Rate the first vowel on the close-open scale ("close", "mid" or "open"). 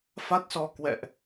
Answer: open